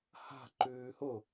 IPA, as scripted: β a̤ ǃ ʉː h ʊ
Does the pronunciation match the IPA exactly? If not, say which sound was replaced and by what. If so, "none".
β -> h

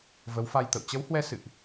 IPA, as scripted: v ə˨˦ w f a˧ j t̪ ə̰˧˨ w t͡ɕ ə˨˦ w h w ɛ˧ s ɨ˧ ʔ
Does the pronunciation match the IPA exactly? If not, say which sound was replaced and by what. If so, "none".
ɨ˧ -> ɨ̰˧˨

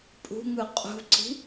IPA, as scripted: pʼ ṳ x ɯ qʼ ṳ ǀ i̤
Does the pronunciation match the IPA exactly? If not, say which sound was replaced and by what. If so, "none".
x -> ŋ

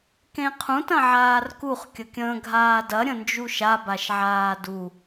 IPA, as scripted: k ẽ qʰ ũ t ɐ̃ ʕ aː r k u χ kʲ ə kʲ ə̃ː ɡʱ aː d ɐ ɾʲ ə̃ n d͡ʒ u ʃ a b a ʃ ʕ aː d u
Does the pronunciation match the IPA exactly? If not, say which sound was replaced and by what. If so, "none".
none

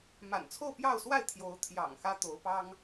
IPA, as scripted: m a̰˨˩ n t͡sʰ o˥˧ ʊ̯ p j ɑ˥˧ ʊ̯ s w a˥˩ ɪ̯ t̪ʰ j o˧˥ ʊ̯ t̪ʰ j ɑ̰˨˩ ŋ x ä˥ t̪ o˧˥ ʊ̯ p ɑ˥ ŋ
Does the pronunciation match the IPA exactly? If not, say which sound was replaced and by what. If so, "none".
none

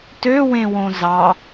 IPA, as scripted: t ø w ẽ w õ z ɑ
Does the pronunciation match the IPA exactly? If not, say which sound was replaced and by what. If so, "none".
none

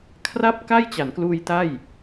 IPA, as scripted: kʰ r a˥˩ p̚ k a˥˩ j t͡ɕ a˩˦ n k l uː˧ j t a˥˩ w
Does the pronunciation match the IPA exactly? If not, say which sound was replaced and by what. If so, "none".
w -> j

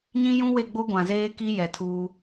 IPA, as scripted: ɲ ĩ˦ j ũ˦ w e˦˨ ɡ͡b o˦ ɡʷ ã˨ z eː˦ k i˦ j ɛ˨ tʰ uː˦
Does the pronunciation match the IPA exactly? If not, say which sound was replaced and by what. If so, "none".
none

